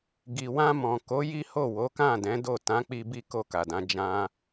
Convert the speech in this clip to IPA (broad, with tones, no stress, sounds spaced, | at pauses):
ɡ i˨ w ã˧ m ɔ̃˨ k o˨˦ j i˦ h o˦˨ w o˨˦ k ã˦˨ d ɛ̃˨˦ d o˦˨ t ã˨˦ k͡p i˧ b i˦ k o˦˨ k a˨ d ã˨˦ d͡ʒ ã˦